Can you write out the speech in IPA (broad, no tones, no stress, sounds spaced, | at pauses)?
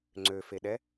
ŋ͡ǀ ø f e ɗ ɛ